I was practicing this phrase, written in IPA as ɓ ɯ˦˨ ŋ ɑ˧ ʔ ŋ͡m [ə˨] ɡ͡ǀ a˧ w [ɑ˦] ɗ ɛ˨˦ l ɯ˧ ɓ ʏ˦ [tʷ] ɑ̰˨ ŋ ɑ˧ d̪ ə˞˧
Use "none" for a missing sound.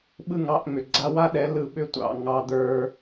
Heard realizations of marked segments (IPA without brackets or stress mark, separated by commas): ʏ˨, a˦, tʷ